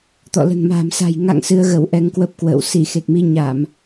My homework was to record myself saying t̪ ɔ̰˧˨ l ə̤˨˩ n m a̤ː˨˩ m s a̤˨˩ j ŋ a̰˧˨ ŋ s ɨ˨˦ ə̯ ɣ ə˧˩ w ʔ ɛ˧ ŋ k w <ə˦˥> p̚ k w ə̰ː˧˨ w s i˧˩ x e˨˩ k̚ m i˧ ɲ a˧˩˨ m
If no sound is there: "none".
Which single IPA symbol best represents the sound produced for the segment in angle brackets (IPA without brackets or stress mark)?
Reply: ə˦˥